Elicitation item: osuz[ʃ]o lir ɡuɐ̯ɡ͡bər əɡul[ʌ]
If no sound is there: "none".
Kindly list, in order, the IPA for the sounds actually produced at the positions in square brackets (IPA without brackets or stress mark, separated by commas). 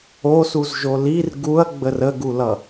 ʒ, ʌ